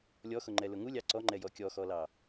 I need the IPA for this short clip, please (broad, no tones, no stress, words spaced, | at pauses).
lʲɔxʊŋ͡ǃɛlʊ ŋulʲɑ ǀɔŋ͡ǃɛjɔ kʲɔxɔlɑ